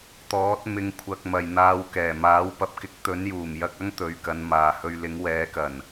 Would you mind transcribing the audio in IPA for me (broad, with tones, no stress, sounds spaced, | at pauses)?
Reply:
t̪ ɔː˨˥ t̚ m ɪ˧ ŋ kʷʰ ɐ˧ k̚ m ɐ˨ j n̪ aː˧ w k ɛː˨˩ m aː˨˥ w p ɐ˧ p̚ k ɪ˥ k̚ t̪ ɵ˨˥ n j uː˨˩ m j ɐ˧ k̚ ɐ˥ ŋ t̪ ɵ˨˧ ɥ k ɐ˨˧ n m aː˨ h ɵ˧ ɥ l ɪ˨˥ ŋ w ɛː˨˥ k ɐ˨˩ n